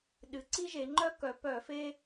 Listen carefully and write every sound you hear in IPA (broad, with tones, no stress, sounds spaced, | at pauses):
ɗ ɨ˩ ǀ i˥ ʒ e˩˧ ŋ͡ǃ œ˥ k œ˩˧ p œ˧˩˧ f e˥